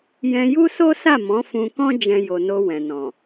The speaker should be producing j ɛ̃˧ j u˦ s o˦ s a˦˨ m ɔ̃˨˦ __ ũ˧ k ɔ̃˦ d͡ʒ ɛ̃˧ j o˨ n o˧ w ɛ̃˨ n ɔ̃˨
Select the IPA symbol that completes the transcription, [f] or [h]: f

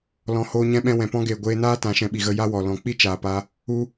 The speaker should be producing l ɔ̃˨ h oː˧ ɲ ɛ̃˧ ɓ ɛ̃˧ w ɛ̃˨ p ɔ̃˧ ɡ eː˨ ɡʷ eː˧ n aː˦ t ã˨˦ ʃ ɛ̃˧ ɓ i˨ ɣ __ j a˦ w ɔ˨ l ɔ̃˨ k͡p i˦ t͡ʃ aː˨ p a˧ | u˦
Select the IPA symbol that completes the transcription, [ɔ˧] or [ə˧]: ə˧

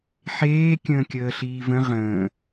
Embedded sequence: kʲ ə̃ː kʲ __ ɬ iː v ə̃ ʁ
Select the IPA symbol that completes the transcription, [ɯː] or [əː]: əː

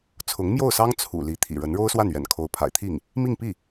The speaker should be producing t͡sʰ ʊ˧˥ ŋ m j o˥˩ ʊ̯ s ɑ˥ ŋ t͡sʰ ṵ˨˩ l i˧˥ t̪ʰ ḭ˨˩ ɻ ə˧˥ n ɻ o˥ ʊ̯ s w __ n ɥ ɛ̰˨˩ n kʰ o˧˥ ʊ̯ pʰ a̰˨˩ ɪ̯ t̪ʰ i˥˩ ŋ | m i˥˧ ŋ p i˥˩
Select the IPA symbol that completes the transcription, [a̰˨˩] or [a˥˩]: a˥˩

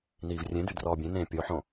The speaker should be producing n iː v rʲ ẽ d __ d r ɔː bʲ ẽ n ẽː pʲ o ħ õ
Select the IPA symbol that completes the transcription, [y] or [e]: y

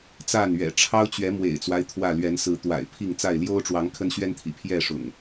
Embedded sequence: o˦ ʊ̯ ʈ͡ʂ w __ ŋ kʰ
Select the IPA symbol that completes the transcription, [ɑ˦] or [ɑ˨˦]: ɑ˨˦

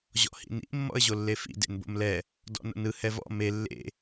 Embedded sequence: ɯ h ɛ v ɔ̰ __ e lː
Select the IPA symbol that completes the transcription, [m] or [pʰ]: m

